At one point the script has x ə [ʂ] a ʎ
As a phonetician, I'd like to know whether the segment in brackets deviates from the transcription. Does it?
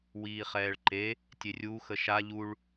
yes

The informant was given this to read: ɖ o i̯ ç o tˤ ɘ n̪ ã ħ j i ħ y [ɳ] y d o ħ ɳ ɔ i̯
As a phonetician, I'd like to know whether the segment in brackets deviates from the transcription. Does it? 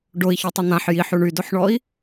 no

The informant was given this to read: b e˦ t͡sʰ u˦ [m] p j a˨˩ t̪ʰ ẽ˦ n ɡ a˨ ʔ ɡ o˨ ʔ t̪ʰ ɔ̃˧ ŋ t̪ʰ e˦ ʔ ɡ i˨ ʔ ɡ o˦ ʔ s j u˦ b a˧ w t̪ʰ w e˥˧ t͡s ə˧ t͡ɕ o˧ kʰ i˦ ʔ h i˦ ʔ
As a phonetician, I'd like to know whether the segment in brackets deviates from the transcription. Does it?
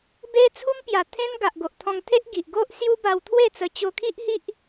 no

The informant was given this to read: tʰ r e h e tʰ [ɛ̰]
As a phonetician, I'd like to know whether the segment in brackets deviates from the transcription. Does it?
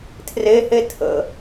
yes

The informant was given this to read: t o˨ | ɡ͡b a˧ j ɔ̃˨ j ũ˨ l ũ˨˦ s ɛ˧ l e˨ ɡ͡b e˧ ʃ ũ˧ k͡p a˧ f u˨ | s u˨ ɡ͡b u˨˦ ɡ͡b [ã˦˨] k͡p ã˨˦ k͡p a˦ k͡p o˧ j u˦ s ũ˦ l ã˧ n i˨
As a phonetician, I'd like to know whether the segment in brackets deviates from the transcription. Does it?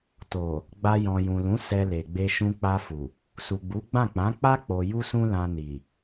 no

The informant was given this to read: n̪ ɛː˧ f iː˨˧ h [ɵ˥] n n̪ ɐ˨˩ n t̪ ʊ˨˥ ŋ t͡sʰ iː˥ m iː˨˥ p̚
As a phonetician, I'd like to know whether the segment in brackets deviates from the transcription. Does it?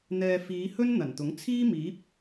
no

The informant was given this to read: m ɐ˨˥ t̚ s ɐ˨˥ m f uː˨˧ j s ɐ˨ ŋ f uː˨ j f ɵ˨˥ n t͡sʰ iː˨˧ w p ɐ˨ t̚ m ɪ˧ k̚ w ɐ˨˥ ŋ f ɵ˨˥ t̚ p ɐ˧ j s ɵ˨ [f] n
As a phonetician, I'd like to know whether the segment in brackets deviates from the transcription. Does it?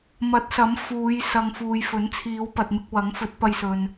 yes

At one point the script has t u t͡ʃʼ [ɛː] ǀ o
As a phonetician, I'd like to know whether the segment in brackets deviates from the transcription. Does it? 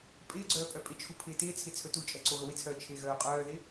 yes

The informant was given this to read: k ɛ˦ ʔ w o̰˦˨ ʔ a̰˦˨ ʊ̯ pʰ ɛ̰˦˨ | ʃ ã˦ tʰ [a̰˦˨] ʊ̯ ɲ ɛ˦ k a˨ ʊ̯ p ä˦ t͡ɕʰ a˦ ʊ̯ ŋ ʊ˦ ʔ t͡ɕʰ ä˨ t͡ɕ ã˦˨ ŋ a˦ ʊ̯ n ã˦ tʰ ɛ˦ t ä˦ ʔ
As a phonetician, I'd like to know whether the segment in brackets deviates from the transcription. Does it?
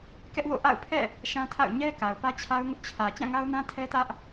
no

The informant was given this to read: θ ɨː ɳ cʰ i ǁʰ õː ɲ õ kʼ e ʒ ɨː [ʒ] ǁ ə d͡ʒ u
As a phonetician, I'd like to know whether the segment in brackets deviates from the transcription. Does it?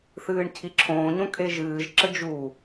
no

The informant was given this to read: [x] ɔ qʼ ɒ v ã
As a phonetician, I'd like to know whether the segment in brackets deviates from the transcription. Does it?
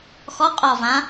no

